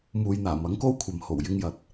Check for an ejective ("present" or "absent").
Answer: absent